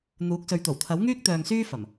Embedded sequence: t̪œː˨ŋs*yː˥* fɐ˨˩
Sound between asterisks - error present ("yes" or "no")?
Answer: no